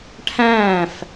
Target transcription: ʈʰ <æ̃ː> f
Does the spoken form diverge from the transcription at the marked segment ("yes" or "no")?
no